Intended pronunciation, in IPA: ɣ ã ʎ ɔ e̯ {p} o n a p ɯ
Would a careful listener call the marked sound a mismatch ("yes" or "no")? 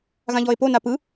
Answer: no